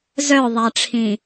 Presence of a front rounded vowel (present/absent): present